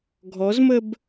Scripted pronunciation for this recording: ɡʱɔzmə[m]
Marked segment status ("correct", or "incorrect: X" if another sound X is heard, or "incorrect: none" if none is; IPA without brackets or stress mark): incorrect: b